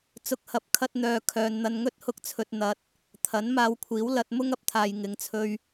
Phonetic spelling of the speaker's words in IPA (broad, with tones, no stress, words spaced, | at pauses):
t͡sʊ˨˥k̚hɐ˨˥p̚kʰɐ˧t̚n̪œː˨ kʰœː˨nn̪ɐ˧nŋɵ˥t̚ hʊ˧k̚t͡sʰɵ˨t̚ n̪ɐ˨t̚ | t̪ʰɐ˨˥n maː˧wkʷʰiː˨˥w lɐ˧t̚mʊ˥ŋ ɐ˧p̚t̪ʰaː˨j ŋɪ˨˧ŋt͡sʰɵ˧ɥ